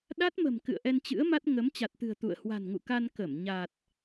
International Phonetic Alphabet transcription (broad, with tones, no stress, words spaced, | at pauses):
ɗa˦˥t̚mə̤˨˩m kɨ̰˧˨ə̯ʔɛ˧nt͡ɕɨ̰˧˥ə̯ma˦˥t̚ ŋə˨˦m t͡ɕa˨˩t̚t̪ɨ̤˨˩ə̯ t̪ṵ˧˨ə̯ hwa̤˨˩nŋṵ˧˨ka˧n kə˧˩m ɲa˨˩t̚